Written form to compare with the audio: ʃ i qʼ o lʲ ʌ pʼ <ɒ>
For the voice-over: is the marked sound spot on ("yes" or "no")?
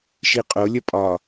yes